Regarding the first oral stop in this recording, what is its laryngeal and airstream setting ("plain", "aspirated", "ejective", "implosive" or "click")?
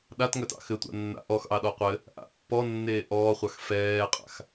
implosive